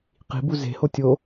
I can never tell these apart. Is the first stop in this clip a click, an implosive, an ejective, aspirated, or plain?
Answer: plain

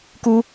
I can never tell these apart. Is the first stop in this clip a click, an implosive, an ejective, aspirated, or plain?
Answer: plain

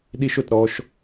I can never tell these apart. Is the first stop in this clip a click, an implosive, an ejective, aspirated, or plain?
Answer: implosive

